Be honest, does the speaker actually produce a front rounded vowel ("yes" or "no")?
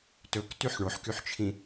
yes